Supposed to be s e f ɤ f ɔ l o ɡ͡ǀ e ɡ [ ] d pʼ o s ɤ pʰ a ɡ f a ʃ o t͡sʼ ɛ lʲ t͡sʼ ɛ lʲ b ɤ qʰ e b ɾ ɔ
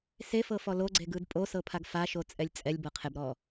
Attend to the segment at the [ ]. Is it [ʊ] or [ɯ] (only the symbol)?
ɯ